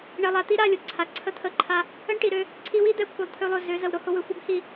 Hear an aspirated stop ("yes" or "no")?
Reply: yes